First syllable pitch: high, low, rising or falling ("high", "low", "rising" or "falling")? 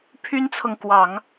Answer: high